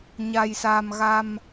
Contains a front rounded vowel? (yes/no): no